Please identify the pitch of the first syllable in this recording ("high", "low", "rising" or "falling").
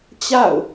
falling